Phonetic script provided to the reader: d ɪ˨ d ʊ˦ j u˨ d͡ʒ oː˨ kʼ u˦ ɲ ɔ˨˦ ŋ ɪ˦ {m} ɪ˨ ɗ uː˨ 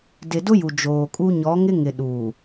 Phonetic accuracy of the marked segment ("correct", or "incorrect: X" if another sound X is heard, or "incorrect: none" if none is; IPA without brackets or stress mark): incorrect: ŋ